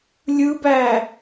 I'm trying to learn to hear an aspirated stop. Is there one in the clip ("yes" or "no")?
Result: no